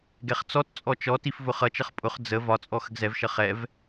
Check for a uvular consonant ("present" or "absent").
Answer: present